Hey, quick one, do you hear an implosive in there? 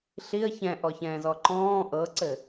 no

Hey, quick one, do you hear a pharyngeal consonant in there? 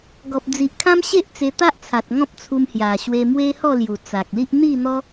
no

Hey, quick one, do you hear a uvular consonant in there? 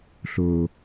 no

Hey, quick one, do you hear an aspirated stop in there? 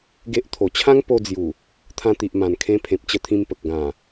yes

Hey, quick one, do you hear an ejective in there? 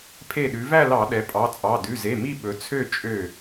yes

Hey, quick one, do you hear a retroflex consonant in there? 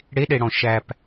yes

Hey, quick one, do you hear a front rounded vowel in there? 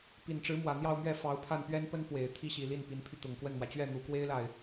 yes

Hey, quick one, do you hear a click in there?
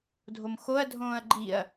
yes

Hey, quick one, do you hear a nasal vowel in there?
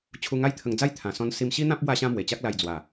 yes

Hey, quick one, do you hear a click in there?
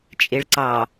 yes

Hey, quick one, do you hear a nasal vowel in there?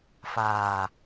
no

